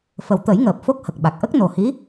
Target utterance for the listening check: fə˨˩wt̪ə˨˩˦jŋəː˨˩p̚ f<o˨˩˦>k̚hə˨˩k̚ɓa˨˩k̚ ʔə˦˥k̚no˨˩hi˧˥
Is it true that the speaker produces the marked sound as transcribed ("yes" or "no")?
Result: no